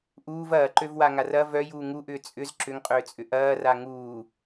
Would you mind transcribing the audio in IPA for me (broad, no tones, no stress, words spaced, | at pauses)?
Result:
ʔuːv ɐːǃøvwaŋar ɐ vœjuː ŋuʔʏː t͡sʼʏz ǁʏŋqʼʏːt͡sʼʏ ʔɐːra ŋuː